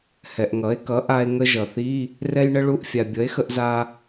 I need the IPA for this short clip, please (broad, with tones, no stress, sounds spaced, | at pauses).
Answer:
h ɛ˩ ʔ ŋ ʌ˩˥ e̯ k ʌ˩˥ ʔ a˧ e̯ ŋ ə˧ ʒ ʌ˩ θ i˧˥˧ | r ɛ˧ j ɳ ə˧ ɭ u˧˥˧ ʔ fʲ a˩ bʲ ʌ˩˥ e̯ x ə˧ ʔ z a˧